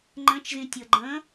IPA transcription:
ŋ͡ǃ ə̃ t͡ʃ z ĩ tʲ ɤ ɡ͡ǃ ə̃

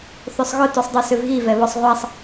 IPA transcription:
θ ø sˤ ɣ ʊ t u sˤ dˤ o s ʏ v ɣ i v ɛ β ɔ sˤ ʁʷ a sˤ

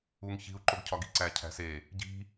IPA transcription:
u ŋ ç i̤ u̯ ǃ o ɡ cʰ ɒ ɡ i ǀ æ cʰ æ̤ s e | ɟ i̤

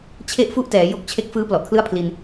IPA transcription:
t͡ɕʰ e˥˩ ʔ f u˥˩ ʔ t ɛː˩˦ j o˦˥ k̚ t͡ɕʰ e˦˥ k̚ f ɯː˦˥ p l ɔ˨˩ ʔ kʰ l ɯ˥˩ a̯ pʰ l i˧ n

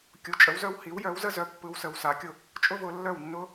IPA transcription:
kʲ u˩˥ t͡ʃʼ ə˩˥ w z œ˥ w h i˩˥ w j œ˩˥ w z ə˥ z œ˧ pː ɯ˧ w s ə˧ w s a˩˥ kʲ ʊ˥˩ | t͡ʃʼ ʊ˥ v ʊ˧ lː œ˥˩ w nː ʊ˥

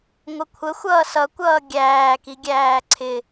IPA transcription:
ŋʷ ə kʷʰ ə xʷ ʌː s ʌ kʷ ʌː ɡʲ æː k i ɡʲ æː ǀʰ ɪ

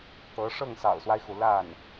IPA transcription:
t̪ ɤ˧˥ ʂ ɤ˥˩ ŋ s ɑ̰˨˩ ʊ̯ s w a˦ ɪ̯ x u˩ l a˥˩ n

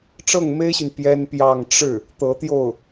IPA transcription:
ʈ͡ʂ ɤ˥˩ ŋ m e˥ ɪ̯ ɕ y˨ n p j ɛ˥ n p j ɑ˥˧ ŋ ʈ͡ʂ ɻ̩˥˩ | t̪ ɤ˧˥ t̪ j o˥˩ ʊ̯

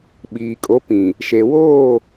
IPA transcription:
ɓ iː˨ kʼ o˨˦ p ĩ˨ | ʃ e˨ w oː˦˨

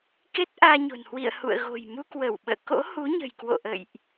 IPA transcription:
k e˦˥ t̚ ʔ aː˧ ɲ o̤˨˩ n h w ḭ˧˨ ə̯ h ṵ˧˨ ə̯ ɣ o̤˨˩ j m u˧ k w ə˧˩ w ɓ ə̰ː˧˨ k o̰˧˥ h u˨˦ ɲ ə̤˨˩ j k w o̰˧˨ ʔ ə̰˧˨ j ʔ

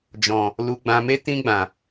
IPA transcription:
d͡ʒ ɔ̃˨ | l u˨ ɡ͡b ã˨ m e˧ t ĩ˧ ɡ͡b ã˨

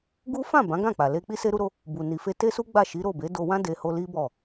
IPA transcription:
ɡ u˦ f ã˦˨ b ã˨˦ ɡ ã˦˨ k͡p a˨ l e˧ k͡p i˦ s e˦ ɾ u˦ ɾ o˦ | b u˨ n i˨ f e˧ t e˦ s u˦ ɡ͡b a˦˨ ʃ i˨˦ ɾ o˦˨ b e˨˦ d o˧ w ã˦ d e˧ h o˧ l i˦ b ɔ˦˨

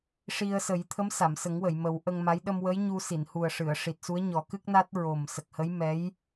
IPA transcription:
ʂ i˧ ə̯ s ə˨˩˦ j t̪ʰ ə˧˥ m s a˨˩˨ m s ə˨˩˦ ŋ w ə˨˩˨ j m ə˨˩˦ w ʔ ə˧ ŋ m a˧˥ j ɗ ə˧ m w ə˧˥ j ɲ u˧ s i˨˩˨ n h u˨˩ ə̯ ʂ ɨ˨˩˨ ə̯ ʂ i˨˩ t̚ s u˧˥ ə̯ ɲ ɔ˨˩˦ k ɨ˦˥ k̚ n a˦˥ t̚ ɹ o˨˩ m s ə˨˩ k̚ h ə˧˥ j m ɛ˧˥ j

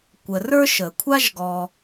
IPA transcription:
kʷ ə˨ r ə˞˥ ʃ ə˩ kʷʰ a˥ ʒ ɡ ɔ˨

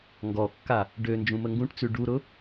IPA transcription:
ŋ ɡ ɔ kː a | ɖ ø n d͡ʒ ũ m ə ŋ ɡ ũ ʈ t͡s ʉ ɖ u ɾ ʊ

